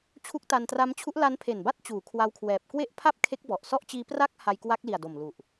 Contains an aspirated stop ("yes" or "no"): yes